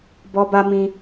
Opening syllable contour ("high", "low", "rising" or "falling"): high